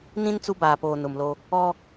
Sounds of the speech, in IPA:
nĩ˦n t͡su˦baː˨poː˨ nʊ˨mlo˦ | ɔ˦

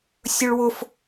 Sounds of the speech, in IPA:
sʲɵɭwʊf

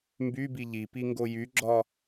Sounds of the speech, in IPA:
mbybi ʎipiŋɡo jyɡ͡ǁɒ

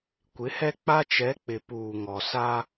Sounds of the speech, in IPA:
kʷɪ˨˦hɛ˦k͡pa˦ t͡ʃɛ˨˦k͡pɪ˨ puː˨ŋɔ˨sa˦

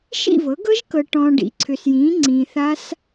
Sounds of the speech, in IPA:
ʃḭ˥˨vɤ˩˥ɡɤ˦˥ʒkɤ˨ ʈɔ̃ː˨ɖḭ˩˥ ǀʰʏ˨sjĩː˩˥ ŋ͡ǀĩː˨θa˦˥s

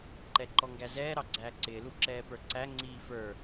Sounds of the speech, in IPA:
ǃɛǃɔŋɡæzɛː ɾɑɡ͡ǀæːǀɪː luǁɛːpə˞ǀæ ŋ͡ǀiːfə˞

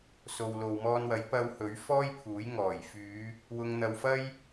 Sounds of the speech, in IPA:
so˨wlo˨wmɔː˧nwɐ˨˥j pɐ˧w hɵ˨˥ɥfɔː˥jpʰuː˨˥j ŋɔː˨˩jfyː˨˧ | wʊ˧ŋn̪ɐ˧wfɐ˥j

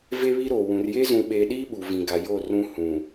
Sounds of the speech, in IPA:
ve˦βi˦ɾoː˨ wũ˨rje˦ zũ˨ɓeː˨ɗiː˦ ɓu˨vĩ˨ɡa˨joː˦˨ rũ˦hũ˨

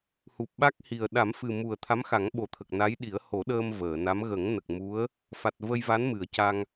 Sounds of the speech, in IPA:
hu˨˩p̚ɓa˦˥k̚hi˨˩ə̯ ɗa˨˩˦mfɨ˨˩mu˨˩ə̯ t̪ʰa˧˥mxa˨˩˦ŋɓo˨˩t̪ʰə˨˩k̚ na˧˥j ɗi˨˩˦ə̯ho˨˩˦ɗəː˧m vəː˨˩˨na˧˥m ɣə˨˩˦ŋnə˨˩k̚ mu˧˥ə̯ | fa˨˩t̚və˧jva˧˥n mɨ˨˩˨ə̯ca˧ŋ

